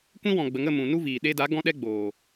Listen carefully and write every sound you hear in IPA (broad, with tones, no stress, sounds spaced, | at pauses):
kʷ ĩ˦ w ɔ̃˨ ɡ͡b ə˨ ŋ ə˦˨ m ũ˨ n u˦ v iː˨ ɗ e˧ d a˨˦ ɡ ɔ̃˦ ɗ ɛ˦ ɡ͡b oː˨